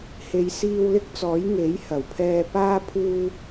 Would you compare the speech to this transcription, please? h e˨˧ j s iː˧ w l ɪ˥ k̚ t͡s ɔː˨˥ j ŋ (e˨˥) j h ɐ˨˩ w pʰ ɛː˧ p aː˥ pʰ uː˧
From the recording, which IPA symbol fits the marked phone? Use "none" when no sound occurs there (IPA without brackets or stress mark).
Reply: e˨˥